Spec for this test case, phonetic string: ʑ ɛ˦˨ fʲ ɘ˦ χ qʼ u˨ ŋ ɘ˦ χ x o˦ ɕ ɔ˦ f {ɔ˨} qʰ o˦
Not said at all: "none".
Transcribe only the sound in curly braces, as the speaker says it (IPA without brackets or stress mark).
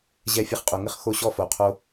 o˨